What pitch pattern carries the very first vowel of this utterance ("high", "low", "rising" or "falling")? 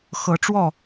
rising